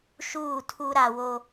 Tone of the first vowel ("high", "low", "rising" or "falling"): falling